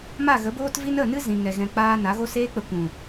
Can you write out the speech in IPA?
m a˦˨ ɣ ə˨˦ b oː˦ t v i˦ n ə˦˨ n ɨ˦ z ĩ˨ ŋ ɛ˨ ɣ ɛ̃˧ k͡p aː˦ n a˨˦ ɣ o˦ s eː˦ k͡p ə˧ kʷ ũ˨

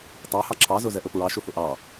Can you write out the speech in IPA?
tˤ a h ɑ ǁʰ ɑ z ɵ z ɛ ʔ ɵ p ɹ ɑ ʃ ɵ f ɵ ʔ ɑ

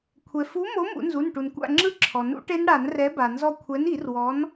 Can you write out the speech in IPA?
kʷʰ ɛ˩ f u˨˥ m o˨˥ m ṵ˨˩˦ n z u˩˧˩ n ʈ u˩ n kʷ a̰˦˨ ŋ͡ǁ ɯ˦˥ ǁʰ ɔ˩ n ṵ˦˥ ʈ e˦˥ n ɽ a˨˩˦ n r ɛ˨˥ b a˩ n z ɔ˦˨ kʷʰ ɛ˨˥ n i˨˩˦ r w ɔ˨˥ n

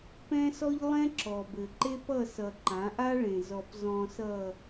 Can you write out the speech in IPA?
p ɛ̃˦ s ɔ˦ ʎ lˠ ɛ̃˦ ǁ ɔ˨ b ɘ˨ ǃ e˦ p ʌ˦˨ s ʌ˨ ǃ ã˨˦ ʔ a˦ ɭ ẽ˨ z ɔ˨ p z ɔ̃˨ s ʌ˨

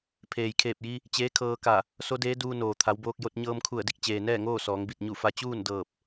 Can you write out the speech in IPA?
pʰ eː˩ j kʰ eː˧˩ p̚ j i˧ | t͡ɕ eː˧˥ kʰ ɤː˧ k a˧˩ | s o˧˥ d eː˧˥ d uː˧ n oː˩ t̪ʰ a˩˧ w b oː˧ k̚ j o˧ t̚ ɲ ɤː˧ m kʰ u˧˩ ə̯ d i˥˨ k̚ t͡ɕ eː˩ n ɛː˥˨ ŋ oː˥˨ s ɔː˩˧ ŋ b i˧˩ t̚ ɲ u˧˩ f a˧ t͡ɕ uː˥˨ n d ɤː˧˩ p̚

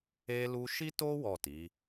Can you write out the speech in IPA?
e˧ l u˧ ʃ i˦ t o˦ w ɔ˦˨ t i˨˦

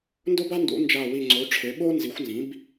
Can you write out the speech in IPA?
n d o˥ b a˥ n d ṵ˩˥ n d͡ʒ a˧˩ w i˧˩ ŋ͡ǀ o˩˥ ʈ͡ʂʰ e˩˥ ɓ o˥ n z i˩˥ xʷ n z ĩ˩˥ b

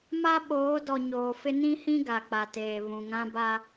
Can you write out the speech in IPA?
m a˦ ɓ oː˨˦ d ɔ˨ ɲ oː˨ f ɪ˦ n ĩ˦ h ĩ˦ ɡ a˨ k͡p a˨ t eː˨ β ũ˨ ŋ ã˦ b a˦

